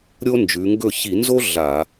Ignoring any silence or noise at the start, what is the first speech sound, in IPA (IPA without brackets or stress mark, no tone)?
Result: ɾʲ